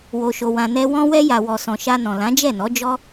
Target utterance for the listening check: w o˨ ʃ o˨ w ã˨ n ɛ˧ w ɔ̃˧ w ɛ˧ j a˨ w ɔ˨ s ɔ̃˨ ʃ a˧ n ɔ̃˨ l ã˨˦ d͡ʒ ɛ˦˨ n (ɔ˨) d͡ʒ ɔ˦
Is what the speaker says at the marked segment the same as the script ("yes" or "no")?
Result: no